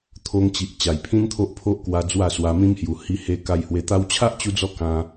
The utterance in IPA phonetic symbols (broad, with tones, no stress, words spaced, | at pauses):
t̪ʰo˧ŋt͡ɕi˨ʔ t͡ɕa˨˩jpʰĩ˦nt̪ʰo˦ʔ pʰo˦ʔkwa˧ d͡zwa˥˧swa˧mĩ˦mhju˨˩ hi˧he˧ ka˧jhwe˧t̪a˦w t͡ɕʰa˦ʔt͡ɕu˧d͡zɔ˧ kã˧